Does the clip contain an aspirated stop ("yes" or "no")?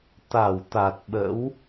no